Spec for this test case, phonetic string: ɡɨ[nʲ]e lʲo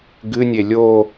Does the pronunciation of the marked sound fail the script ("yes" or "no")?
no